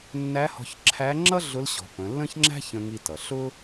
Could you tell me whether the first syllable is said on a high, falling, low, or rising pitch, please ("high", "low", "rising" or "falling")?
rising